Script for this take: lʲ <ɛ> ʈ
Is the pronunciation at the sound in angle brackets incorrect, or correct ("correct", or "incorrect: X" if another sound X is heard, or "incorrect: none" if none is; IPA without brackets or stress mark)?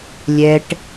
correct